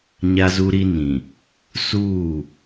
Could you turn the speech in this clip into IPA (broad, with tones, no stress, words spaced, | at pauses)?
ɲa˦zu˦ɾi˦nĩ˨ | suː˦˨